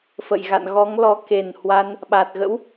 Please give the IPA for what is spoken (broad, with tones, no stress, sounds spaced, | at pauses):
f ə̰˧˨ j ɣ a̰˧˨ n ɣ ɔ˨˦ ŋ l ɔ˨˦ k e˨˩ n h w a˧ n | ɓ a˨˩ t̚ ɣ ə̰˧˥ w